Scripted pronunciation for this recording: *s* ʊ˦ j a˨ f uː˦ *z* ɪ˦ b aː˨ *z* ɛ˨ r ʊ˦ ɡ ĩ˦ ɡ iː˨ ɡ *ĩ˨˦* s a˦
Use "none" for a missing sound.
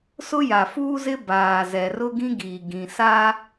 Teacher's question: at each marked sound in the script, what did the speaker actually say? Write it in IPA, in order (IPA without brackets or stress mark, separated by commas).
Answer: s, z, z, ĩ˨